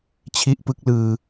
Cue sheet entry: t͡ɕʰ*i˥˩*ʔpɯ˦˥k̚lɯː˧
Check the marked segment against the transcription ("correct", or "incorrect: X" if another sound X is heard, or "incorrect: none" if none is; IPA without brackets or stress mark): incorrect: i˦˥